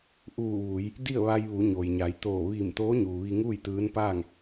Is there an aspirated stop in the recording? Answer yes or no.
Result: no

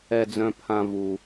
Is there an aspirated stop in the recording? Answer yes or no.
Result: yes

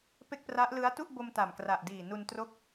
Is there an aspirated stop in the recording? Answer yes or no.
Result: no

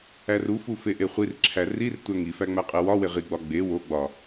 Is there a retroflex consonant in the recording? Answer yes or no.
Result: no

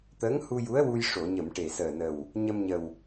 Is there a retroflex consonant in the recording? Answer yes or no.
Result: yes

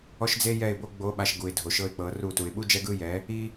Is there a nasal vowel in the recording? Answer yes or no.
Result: no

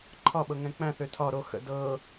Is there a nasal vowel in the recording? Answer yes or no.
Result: yes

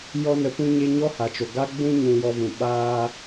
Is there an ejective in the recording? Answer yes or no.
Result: no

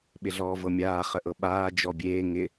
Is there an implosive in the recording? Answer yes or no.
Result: yes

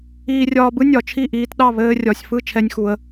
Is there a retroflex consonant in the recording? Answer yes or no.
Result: no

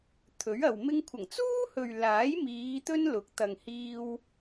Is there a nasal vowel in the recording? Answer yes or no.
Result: no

